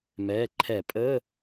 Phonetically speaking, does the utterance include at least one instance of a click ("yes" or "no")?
yes